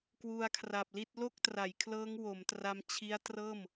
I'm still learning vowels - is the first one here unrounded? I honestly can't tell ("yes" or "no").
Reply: no